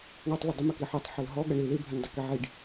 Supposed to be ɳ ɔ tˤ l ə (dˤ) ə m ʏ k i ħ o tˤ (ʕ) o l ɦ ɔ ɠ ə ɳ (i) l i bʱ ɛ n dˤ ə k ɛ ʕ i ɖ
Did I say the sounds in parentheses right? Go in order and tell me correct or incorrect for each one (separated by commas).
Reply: correct, incorrect, correct